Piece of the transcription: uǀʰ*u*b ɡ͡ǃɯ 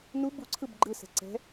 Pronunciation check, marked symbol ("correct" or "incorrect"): incorrect